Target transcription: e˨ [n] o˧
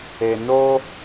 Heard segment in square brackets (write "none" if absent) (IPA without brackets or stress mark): n